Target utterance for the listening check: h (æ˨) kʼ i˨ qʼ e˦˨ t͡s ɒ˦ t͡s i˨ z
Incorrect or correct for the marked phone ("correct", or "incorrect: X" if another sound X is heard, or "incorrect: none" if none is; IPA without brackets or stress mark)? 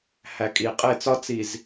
correct